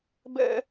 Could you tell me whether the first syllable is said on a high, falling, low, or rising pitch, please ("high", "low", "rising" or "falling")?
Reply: high